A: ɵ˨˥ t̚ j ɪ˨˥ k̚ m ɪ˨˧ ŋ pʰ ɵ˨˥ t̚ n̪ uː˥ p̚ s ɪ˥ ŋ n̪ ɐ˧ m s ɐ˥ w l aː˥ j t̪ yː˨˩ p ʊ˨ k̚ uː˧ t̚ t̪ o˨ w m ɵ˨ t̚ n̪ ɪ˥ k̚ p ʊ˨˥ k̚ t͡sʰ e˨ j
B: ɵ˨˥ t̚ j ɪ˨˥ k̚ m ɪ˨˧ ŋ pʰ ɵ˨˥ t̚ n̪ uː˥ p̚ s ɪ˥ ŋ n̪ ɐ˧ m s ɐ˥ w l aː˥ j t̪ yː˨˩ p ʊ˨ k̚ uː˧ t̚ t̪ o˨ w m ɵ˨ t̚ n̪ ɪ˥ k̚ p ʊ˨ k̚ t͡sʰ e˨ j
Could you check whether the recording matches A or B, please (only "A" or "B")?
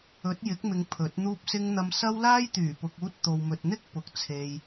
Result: B